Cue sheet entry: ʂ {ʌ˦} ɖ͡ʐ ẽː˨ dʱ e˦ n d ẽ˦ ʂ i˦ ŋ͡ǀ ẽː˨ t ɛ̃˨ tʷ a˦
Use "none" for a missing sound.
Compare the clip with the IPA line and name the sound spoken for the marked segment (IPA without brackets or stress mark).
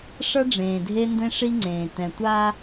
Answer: ʌ˦